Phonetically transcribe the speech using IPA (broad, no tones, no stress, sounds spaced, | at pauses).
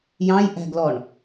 j ɑ̃ j ʔ æ̤ ɡ l ɔ ɳ